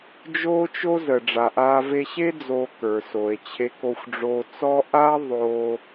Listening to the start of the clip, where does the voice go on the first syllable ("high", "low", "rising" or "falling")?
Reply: high